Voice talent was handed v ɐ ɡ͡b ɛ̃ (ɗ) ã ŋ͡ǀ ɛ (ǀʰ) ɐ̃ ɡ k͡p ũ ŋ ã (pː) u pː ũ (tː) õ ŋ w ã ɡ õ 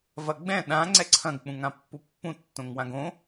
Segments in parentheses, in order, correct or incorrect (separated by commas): correct, correct, correct, correct